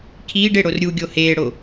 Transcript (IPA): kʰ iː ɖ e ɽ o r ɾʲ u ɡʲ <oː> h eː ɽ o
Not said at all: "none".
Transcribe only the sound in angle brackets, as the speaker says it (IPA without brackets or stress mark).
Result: o